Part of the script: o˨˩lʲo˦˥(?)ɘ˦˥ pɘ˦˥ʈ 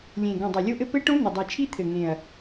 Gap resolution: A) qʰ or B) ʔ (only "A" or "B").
B